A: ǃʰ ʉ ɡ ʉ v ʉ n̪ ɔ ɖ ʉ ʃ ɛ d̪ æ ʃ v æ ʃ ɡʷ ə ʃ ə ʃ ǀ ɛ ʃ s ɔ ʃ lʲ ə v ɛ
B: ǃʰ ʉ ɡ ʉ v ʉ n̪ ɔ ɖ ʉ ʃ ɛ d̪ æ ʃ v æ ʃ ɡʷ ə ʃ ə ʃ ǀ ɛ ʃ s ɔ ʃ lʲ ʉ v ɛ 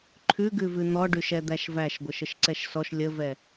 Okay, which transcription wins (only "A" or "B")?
A